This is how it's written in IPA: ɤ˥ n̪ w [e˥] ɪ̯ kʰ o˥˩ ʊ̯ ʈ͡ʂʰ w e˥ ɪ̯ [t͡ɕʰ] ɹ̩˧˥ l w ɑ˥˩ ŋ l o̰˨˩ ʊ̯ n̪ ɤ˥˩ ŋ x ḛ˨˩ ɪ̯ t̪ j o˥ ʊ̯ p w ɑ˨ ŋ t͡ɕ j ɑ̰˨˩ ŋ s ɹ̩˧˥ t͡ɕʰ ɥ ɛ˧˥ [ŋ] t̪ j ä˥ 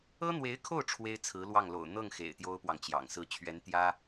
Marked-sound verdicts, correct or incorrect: incorrect: e˧˥, incorrect: t͡sʰ, incorrect: n

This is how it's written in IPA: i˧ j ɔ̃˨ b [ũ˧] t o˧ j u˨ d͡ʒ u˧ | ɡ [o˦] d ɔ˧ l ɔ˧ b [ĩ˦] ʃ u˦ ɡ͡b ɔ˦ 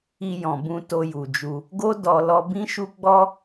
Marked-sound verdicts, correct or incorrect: correct, correct, correct

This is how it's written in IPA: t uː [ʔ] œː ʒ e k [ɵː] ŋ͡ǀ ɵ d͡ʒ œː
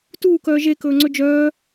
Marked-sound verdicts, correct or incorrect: incorrect: k, correct

